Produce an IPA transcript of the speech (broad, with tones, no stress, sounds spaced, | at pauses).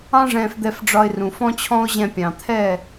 ɑ̃˦ ʐ ɛ̃˧ f d̪ ɛ˧ f ɖ͡ʐ ɒ˧ ɪ̯ r ũ˨ f ɔ̃˦ t͡ɕʰ ɔ̃˦ ʊ̯ ʑ ɛ̃˧ pʲ ɑ̃˨ t̪ʰ ɛ˦˨